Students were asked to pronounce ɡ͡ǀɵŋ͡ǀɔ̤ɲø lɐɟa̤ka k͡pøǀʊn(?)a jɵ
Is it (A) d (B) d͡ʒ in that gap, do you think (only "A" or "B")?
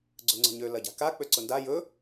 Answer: A